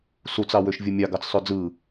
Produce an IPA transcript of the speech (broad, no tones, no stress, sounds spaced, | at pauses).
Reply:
s u t͡s ɑ w ø ʃ vʲ ɯ mʲ ɑ ɡ ɑ t͡s sˤ ø d͡z ɯ